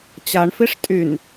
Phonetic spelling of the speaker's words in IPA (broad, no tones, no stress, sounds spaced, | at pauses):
t͡ɕ a ɳ f i ʂ tʼ y n